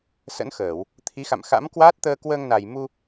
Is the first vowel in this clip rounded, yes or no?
no